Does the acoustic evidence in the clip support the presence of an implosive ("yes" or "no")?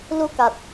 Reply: no